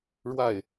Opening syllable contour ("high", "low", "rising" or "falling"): falling